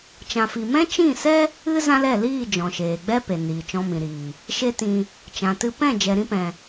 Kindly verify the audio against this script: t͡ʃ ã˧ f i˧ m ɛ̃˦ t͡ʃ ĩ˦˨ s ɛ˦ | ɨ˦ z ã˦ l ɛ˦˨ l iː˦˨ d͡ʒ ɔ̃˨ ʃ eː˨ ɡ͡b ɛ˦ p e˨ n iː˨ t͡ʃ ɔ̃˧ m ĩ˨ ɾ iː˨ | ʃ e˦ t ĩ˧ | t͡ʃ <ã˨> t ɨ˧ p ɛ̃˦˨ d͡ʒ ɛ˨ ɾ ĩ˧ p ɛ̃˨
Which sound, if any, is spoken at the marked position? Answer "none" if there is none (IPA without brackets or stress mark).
ã˨